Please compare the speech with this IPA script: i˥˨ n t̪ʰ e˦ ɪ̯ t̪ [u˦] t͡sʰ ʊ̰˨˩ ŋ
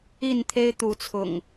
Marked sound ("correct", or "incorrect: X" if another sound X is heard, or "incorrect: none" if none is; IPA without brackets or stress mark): incorrect: u˨˦